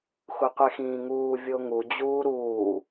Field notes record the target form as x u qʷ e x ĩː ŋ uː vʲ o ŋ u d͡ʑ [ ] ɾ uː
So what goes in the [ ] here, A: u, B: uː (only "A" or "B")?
B